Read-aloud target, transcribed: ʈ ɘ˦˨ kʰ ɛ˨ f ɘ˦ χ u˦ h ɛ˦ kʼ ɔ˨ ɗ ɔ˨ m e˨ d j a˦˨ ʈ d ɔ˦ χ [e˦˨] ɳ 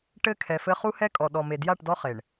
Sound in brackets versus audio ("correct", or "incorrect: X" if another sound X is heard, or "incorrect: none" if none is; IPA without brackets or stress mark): incorrect: e˨